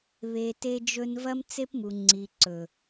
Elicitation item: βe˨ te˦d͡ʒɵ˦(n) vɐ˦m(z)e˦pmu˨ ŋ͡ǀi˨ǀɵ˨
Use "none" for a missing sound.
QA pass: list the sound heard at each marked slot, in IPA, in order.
n, t͡s

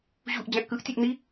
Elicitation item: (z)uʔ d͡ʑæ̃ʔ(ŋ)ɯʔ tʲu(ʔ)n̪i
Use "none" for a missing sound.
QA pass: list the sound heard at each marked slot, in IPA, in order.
ʑ, k, ʔ

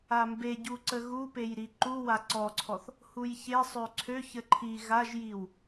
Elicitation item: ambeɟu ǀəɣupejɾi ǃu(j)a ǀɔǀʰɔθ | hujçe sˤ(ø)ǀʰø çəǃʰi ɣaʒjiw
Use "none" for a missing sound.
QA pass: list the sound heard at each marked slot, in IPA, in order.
w, ø

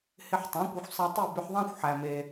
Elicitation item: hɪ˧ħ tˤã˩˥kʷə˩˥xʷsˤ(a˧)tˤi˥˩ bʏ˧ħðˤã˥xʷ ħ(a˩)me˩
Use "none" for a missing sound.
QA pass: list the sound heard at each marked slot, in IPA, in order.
a˧, æ˩

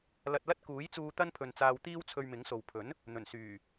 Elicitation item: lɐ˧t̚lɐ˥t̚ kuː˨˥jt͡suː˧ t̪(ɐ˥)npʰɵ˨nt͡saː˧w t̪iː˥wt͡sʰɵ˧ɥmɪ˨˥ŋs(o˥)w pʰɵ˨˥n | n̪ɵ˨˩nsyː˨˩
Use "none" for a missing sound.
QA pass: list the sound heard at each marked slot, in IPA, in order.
ɐ˥, o˨

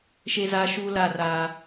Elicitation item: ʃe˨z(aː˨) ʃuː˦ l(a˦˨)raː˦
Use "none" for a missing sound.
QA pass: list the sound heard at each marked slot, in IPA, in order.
aː˨, a˦˨

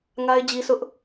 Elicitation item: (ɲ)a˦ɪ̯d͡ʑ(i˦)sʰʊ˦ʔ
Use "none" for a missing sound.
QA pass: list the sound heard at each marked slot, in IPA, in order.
ŋ, i˦

